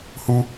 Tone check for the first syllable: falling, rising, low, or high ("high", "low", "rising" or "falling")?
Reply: high